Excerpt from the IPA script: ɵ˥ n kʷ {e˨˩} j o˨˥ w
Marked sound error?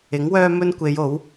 yes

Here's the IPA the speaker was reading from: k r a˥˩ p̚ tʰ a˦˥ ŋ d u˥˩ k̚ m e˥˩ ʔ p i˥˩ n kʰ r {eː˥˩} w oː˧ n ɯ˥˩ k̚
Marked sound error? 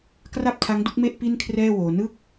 yes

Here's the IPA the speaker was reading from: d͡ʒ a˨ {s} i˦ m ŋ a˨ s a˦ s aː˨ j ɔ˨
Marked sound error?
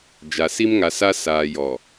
no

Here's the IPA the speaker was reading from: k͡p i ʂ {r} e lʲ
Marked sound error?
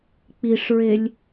yes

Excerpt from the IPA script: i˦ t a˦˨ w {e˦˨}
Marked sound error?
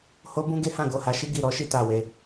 yes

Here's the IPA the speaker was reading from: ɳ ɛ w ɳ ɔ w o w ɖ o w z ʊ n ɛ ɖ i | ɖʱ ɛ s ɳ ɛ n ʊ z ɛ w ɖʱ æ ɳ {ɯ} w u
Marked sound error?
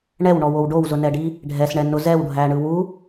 no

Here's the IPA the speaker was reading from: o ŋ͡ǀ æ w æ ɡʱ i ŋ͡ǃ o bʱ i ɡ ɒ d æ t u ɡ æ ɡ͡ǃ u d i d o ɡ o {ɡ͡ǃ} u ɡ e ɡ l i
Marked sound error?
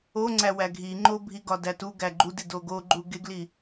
no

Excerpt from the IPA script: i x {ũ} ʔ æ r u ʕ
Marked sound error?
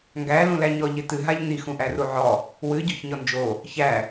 no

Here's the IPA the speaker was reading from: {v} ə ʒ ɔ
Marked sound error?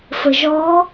yes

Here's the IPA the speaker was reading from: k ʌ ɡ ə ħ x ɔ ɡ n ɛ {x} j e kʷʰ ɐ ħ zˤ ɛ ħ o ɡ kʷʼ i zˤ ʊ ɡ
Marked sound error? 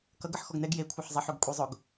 yes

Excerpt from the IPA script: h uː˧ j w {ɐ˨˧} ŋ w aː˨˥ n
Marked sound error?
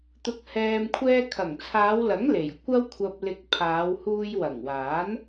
yes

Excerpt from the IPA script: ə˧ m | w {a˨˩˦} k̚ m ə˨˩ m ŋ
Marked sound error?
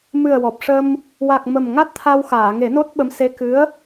yes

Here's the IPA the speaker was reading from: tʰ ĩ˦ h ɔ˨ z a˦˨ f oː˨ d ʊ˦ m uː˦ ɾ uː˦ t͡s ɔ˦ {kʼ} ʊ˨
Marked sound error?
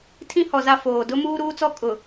no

